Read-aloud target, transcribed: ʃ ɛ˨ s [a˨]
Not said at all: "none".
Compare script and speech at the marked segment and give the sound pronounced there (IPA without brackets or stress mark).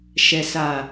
a˨